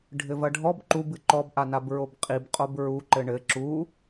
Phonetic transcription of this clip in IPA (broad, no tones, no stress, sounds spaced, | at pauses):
ɖʱ ɘ v ɐ ɖʱ ɔ b ǃ u b ɨ ǃ ɔ b ʔ a n a b ɹ o b qʼ i b qʼ o b ɹ u ǃ ɘ ɳ ɘ ǁ u